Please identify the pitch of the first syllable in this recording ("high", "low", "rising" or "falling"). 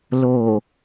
low